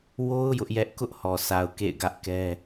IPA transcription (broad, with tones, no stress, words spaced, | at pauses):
wo˦ʊ̯ jʊ˦ʔjɛ˦ʔ kʊ˦ʔhɔ˨sa˨ʊ̯ kḛ˦˨ɪ̯ɡä˦ʔkɛ˦